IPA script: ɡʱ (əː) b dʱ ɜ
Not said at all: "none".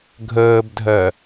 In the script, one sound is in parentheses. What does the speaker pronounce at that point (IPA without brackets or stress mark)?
əː